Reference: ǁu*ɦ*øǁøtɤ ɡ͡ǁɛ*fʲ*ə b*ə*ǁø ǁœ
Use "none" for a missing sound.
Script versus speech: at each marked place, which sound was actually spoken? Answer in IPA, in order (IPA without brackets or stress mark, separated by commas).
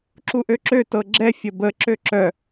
ʔ, fʲ, ə